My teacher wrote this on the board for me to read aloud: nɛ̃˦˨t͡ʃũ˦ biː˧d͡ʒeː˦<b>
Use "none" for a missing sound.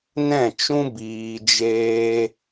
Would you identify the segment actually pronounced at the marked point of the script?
none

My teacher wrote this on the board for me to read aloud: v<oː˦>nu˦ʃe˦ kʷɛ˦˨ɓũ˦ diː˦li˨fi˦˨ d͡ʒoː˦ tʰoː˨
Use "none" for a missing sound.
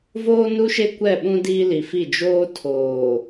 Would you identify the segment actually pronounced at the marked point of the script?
oː˦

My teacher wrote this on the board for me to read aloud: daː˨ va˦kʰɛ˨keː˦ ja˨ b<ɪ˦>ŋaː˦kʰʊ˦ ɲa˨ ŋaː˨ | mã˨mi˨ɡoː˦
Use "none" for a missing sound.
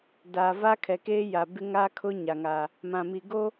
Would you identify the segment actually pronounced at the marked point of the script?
ɪ˦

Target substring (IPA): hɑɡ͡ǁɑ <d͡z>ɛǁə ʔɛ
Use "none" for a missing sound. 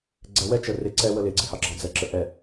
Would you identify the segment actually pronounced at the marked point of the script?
d͡z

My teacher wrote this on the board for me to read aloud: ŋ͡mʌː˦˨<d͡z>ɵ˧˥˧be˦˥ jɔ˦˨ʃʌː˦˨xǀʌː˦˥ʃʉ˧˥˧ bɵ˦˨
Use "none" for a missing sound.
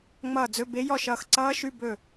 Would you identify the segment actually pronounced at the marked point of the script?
d͡z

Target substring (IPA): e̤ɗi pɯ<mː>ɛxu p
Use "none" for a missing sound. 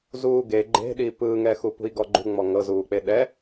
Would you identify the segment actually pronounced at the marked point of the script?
ŋ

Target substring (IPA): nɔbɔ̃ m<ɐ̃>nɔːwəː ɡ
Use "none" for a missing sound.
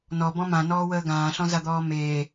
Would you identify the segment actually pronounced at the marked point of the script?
ã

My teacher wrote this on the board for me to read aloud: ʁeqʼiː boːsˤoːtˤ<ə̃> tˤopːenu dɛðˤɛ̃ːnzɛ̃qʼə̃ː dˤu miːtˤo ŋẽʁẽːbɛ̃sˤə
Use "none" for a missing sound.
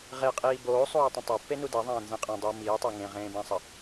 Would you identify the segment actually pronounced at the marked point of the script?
ə̃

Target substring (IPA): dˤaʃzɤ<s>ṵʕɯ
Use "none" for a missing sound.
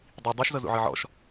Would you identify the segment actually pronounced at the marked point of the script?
z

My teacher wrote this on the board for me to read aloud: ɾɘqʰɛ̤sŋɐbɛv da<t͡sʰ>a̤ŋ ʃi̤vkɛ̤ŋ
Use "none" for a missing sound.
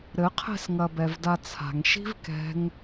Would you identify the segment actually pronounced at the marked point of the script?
t͡sʰ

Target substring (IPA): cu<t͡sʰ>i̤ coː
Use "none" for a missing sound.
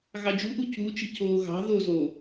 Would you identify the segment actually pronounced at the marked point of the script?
t͡ʃ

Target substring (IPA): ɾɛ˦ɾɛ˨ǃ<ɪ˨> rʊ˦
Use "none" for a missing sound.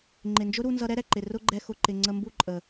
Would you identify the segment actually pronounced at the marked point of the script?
ɪ˨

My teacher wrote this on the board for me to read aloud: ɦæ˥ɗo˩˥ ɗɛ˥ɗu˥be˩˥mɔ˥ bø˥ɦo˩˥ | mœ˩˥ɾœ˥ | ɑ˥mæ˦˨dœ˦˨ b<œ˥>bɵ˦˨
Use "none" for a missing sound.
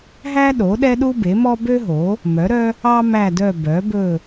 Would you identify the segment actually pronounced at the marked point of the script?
œ˩˥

